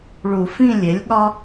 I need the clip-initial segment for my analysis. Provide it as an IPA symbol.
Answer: ɭ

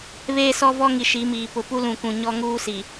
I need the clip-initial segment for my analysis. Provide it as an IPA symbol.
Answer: β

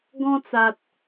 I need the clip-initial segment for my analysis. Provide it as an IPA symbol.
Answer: ɡ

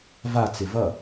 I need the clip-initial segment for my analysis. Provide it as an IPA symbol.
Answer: v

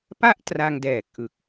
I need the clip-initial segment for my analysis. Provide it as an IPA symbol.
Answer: p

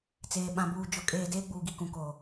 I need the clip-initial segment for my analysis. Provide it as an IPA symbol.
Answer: t͡s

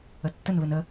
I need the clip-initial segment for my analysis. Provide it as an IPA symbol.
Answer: ə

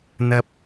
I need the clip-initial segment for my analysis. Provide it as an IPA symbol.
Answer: n̪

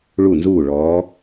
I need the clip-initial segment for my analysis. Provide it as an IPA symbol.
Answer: ɭ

